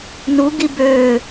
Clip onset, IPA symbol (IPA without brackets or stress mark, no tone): n